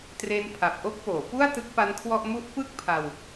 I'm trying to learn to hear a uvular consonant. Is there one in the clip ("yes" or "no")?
no